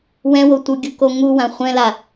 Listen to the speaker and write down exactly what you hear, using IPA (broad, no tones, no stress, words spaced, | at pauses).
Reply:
wɛ̃wo tʷɯɡʲuko ŋuwã χʷɛ̃la